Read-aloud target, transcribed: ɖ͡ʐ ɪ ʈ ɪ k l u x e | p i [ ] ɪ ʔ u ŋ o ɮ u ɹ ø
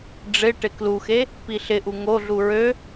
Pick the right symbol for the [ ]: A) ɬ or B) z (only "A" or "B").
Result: A